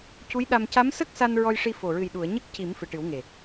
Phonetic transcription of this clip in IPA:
c u˧˥ j ɗ a˧ m c a˧˥ m s ə˦˥ k̚ s a˧ n ɹ ɔ˧ j ʂ i˧ f o˨˩ ɹ ɨ˨˩ j ɗ u˨˩˨ ə̯ ɲ ə˦˥ k̚ c i˨˩˦ m f ɨ˨˩ ʈ ɨ˨˩˦ w ŋ e˨˩

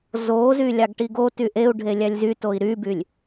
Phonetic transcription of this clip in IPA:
z o z y lʲ ɑ ɡ ʈ i ɡ o t y ʔ e u̯ ɖʱ e lʲ æ lʲ z y t o i̯ ɾ y b y lʲ

